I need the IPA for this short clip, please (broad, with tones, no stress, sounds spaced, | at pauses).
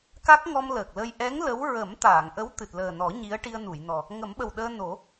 k a˦˥ k̚ ŋ ɔ˧ m l əː˨˩ k̚ l ə˧ j ʔ ɛ˧˥ ŋ l ə˧˥ w ɹ ə˨˩˦ m t̪ aː˨˩˨ ŋ ʔ ə˧˥ w t̪ ɨ˨˩ t̚ l əː˨˩ n ɔ˨˩˦ ɲ i˧˥ ə̯ ʈ i˧ ə̯ n u˨˩˨ j n ɔ˨˩ | ŋ ə˨˩˦ m ɓ ə˨˩ w ɗ əː˧ n o˨˩˦